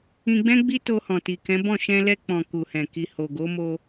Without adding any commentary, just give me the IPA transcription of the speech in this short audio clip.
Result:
ĩ˧ɡ͡bɛ̃˦ɡ͡bi˦ to˧hɔ̃˨ti˨kɛ̃˨˦ bɔ̃˦˨ ʃɛ̃˧lɛ˧ k͡pɔ̃˨ ku˨hɛ̃˨ki˨ ho˨ɡo˨˦mo˧

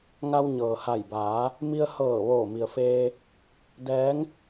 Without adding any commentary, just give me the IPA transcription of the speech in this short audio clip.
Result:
ŋa˧wɲɤː˩ha˧˩jbaː˩˧ | mi˧ə̯hɤː˧˩ ʋoː˧˩mi˩ə̯feː˧ | dɛː˧˥ŋ

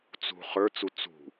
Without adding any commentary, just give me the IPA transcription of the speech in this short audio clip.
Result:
t͡sṳ χə˞t͡su t͡sṳ

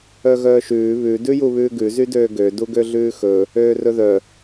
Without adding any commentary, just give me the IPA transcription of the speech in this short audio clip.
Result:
œɣœːʃʉː βʉ dʉjuβʉːɡʉ zydøːɡø duɡøɮʉːxɵ | øːrɵðœ

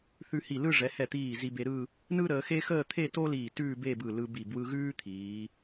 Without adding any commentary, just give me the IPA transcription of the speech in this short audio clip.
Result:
θʉ˧hi˧˩lɯ˥˧ ʐɛ˩˧hɛ˧˩t̪iː˧˩ zi˧be˧ ɾɯ˥˧ | nɯ˥ɾəː˩˧xe˥xəː˥˧ t̪ʰe˥˧to˥ liː˧˩tʉː˥˧be˥˧bɯ˧˩ lɯ˧bi˧˩ bwɯ˧ɣʉː˥ t̪ʰiː˩˧

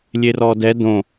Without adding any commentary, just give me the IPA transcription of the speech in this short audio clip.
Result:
lʲerɔdɛ dõ

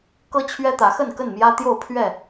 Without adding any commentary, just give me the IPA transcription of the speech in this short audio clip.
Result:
kɤ˦t͡ɕʰɥɛ˦t̪ä˨˦xə˥˨n kə˥˨nmjä˦t̪jo˥˨ʊ̯ pʰɥɛ˥˨

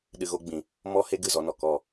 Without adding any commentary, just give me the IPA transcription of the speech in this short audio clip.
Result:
ɗɨ˧ɣo˦ɡ͡bĩ˧ | mɔ˦he˦ ɡɨ˦˨zɔ˧nɔ˨ kɔ˦˨

